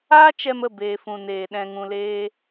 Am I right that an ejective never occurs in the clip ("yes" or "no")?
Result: yes